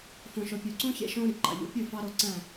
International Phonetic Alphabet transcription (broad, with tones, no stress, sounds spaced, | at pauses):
f õ˨ ʃ o˨ pʲ u˨ ǀ ũ˦ ç ḛ˦ ʃ õ˦ ɾ i˨ ǃ ɑ̰˨ ʎ ṵ˨˦ pʲ ɯ˦˨ f ɑ˦ ɾ o˦˨ ǀ æ̃˦˨